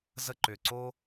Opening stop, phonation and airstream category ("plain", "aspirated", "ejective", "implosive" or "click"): click